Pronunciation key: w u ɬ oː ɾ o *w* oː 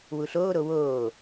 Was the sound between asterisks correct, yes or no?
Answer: yes